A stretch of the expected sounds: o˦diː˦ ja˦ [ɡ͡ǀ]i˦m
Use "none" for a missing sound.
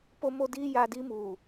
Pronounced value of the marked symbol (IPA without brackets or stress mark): d